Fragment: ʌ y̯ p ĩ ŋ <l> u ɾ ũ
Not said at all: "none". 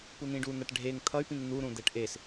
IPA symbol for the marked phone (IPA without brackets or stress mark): n̪